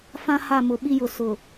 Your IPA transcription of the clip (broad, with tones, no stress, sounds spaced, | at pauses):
f ã˦ h a˦˨ m ʊ˨ ɓ i˦ j ʊ˨ s ʊ˨